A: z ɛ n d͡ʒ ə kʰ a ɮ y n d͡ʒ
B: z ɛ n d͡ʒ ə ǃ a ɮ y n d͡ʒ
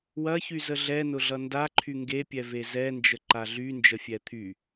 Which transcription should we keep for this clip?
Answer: B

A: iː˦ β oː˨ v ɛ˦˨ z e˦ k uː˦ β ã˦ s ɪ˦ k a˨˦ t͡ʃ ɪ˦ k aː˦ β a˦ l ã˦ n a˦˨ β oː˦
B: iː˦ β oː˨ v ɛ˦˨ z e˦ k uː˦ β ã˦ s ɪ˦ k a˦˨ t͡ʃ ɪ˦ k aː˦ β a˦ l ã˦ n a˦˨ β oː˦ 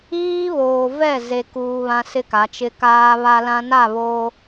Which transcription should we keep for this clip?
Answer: A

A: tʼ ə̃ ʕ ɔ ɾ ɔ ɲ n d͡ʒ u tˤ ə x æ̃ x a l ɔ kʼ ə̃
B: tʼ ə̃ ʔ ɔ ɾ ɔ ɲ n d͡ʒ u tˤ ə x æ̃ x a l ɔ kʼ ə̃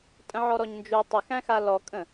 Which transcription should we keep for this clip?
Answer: A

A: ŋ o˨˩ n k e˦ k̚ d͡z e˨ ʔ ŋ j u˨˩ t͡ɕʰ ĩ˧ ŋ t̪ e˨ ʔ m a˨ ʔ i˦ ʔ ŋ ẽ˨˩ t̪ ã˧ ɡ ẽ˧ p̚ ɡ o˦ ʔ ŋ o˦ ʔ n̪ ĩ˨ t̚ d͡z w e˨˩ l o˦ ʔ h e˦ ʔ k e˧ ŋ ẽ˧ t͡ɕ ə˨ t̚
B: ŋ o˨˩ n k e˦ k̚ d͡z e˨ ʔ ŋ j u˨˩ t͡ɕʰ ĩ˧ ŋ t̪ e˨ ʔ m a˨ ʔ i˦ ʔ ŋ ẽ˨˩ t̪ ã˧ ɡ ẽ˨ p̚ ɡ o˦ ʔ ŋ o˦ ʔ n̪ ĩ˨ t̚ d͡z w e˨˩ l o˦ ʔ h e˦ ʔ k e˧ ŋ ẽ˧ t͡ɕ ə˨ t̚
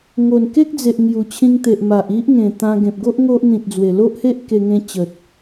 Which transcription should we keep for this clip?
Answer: B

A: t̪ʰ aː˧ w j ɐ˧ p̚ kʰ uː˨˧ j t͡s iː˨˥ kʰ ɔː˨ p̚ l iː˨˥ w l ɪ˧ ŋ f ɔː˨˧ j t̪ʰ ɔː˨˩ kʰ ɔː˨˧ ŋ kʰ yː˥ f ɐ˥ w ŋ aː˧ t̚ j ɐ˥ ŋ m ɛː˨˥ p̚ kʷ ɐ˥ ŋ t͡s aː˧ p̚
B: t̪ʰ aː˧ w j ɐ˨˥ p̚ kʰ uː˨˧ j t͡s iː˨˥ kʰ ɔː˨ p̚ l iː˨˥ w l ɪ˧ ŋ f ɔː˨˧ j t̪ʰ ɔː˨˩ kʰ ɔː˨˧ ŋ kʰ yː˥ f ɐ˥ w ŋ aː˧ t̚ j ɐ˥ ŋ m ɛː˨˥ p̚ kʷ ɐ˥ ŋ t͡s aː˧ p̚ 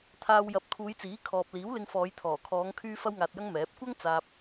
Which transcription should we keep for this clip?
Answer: B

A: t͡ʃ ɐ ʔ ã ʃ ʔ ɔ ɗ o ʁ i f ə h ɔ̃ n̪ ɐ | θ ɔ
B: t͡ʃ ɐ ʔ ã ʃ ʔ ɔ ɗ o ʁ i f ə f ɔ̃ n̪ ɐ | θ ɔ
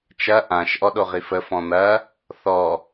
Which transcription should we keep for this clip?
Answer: B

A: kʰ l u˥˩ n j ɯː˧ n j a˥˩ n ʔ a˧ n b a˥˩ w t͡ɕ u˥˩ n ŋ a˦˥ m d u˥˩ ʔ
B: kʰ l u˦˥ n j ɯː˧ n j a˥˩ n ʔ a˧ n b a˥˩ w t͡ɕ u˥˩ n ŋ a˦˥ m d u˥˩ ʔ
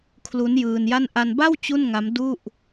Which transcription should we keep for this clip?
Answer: B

